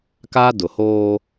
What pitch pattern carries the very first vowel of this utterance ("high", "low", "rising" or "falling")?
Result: high